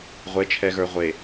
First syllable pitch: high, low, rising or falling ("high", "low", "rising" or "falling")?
rising